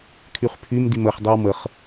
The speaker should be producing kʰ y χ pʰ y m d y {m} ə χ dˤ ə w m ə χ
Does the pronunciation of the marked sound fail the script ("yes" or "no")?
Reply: no